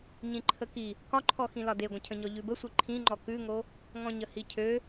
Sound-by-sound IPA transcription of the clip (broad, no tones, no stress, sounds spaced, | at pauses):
ɲ ĩ ǃʰ ə k i | k ɒ ǃʰ ɔ x ĩ l ɒ d e ɡʷ ə̃ cʰ ə̃ ɲ ɔ ʎ ʉ b ə sʷ i ǃʰ ĩ ŋ͡ǃ ɔ k ʉ ŋ o | ŋ ɔ̃ ɲ ə h i cʰ ø